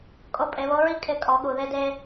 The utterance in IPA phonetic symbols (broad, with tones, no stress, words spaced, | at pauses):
kʼo˧˥pʼe˩˧βo˧˥ɹi˥ kʼɪ˧ kʼɔ˩˧ɠu˩ ðe˧de˧